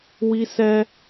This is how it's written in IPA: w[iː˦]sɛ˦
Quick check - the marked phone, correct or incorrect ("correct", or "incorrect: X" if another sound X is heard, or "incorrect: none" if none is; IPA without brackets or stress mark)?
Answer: incorrect: i˦